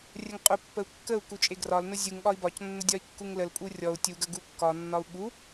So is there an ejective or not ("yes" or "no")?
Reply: yes